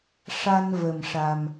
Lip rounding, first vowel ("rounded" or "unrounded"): unrounded